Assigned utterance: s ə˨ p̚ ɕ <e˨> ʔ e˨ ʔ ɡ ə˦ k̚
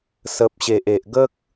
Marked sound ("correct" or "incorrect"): correct